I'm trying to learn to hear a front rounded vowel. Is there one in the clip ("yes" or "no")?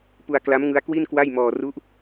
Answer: no